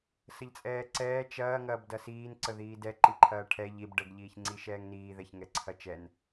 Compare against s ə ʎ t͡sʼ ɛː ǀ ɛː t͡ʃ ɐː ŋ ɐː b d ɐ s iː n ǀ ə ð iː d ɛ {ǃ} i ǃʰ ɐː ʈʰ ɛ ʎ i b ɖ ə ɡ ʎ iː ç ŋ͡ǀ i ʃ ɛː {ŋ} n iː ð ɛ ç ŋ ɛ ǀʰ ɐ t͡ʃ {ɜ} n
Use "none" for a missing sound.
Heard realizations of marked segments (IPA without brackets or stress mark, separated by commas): ǃ, ŋ, ɛ